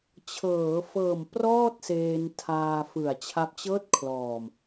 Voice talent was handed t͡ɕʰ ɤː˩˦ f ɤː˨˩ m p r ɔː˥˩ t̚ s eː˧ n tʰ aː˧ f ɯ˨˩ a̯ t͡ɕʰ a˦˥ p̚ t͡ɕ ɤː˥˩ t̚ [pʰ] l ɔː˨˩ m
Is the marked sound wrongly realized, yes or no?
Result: yes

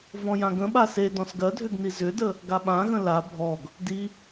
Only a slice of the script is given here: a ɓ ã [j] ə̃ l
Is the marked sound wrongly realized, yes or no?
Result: yes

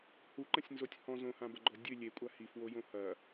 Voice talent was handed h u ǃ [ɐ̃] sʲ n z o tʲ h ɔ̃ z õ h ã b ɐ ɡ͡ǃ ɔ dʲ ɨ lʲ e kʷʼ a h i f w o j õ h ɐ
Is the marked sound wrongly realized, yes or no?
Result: no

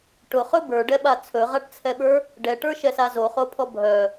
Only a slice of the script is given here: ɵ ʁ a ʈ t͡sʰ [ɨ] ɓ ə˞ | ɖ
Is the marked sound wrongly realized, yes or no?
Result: yes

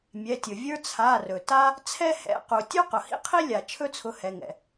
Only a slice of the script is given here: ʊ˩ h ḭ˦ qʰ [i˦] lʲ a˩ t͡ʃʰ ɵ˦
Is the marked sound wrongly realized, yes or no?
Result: no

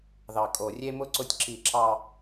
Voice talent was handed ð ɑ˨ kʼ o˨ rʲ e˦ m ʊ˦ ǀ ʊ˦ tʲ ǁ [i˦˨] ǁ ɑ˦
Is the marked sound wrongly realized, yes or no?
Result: no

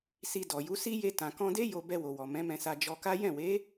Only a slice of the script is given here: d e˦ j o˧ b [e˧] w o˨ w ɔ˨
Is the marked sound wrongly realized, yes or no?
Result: yes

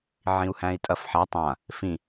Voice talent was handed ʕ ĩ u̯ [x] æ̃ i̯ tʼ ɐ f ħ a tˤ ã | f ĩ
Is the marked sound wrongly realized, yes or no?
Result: yes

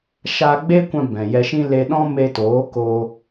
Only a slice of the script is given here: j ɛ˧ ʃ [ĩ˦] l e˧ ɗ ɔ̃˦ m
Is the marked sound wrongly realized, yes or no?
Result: no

